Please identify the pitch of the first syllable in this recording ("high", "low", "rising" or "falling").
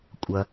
low